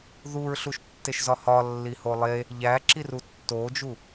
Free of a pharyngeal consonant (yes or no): yes